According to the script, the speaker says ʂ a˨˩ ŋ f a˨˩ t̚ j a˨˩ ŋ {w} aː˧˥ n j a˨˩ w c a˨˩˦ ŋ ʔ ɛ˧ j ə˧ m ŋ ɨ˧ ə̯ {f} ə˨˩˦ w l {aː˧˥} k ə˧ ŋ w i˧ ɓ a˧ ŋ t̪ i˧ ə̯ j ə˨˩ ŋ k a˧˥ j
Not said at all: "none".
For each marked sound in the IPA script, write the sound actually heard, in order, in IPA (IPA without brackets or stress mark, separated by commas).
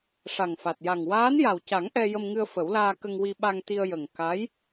w, f, aː˧